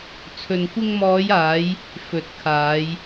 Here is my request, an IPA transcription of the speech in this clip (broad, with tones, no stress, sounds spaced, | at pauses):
t͡sʰ ɵ˧ n kʷ ɪ˧ ŋ m ɔː˨˧ j aː˨˧ j | f ɵ˨˥ t̚ kʰ aː˨˧ j